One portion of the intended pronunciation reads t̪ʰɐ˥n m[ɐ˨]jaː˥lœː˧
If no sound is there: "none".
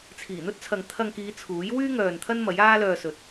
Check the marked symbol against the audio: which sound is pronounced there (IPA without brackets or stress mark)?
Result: ɐ˨˥